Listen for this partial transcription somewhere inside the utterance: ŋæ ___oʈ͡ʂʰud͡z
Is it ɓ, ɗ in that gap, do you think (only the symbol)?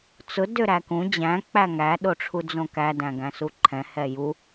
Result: ɗ